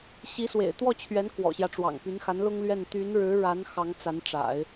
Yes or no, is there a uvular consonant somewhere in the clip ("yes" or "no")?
no